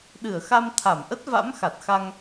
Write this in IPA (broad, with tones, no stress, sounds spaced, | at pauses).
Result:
ɗ ɨ˧˩ ə̯ x a˧ m t̪ʰ a˧˩ m ʔ ə˦˥ t̚ v a̰˧˥ m x a˨˩ t̚ x a˧ ŋ